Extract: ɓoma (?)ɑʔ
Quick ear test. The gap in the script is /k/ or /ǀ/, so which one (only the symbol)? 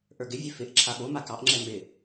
k